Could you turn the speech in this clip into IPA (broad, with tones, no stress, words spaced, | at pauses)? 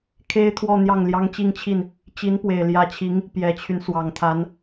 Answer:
kʰe˥ɪ̯ t̪ʰwɔ˥˧n̪jɑ˥˩ŋ ljɑ˥ŋt͡ɕi˥˧ŋt͡ɕʰi˥˩n | t͡ɕi˧˥npwe˨˩ɪ̯ljä˧˥t͡ɕʰi˧˥ŋ | pjɛ˨˩t͡ɕʰy˦n swɑ˨˩ŋt̪ʰa˧˥n